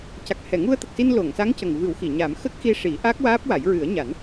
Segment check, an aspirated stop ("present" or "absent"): absent